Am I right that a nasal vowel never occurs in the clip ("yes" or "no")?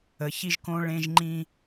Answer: no